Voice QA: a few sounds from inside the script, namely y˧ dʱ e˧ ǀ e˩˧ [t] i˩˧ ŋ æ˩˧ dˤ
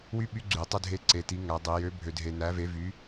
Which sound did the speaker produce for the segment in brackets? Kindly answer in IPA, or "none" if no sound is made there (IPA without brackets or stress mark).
t